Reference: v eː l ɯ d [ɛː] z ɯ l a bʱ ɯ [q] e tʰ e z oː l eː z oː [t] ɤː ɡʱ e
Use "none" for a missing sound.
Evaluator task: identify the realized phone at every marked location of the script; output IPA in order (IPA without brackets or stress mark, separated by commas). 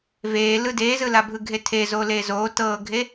eː, ɡʱ, t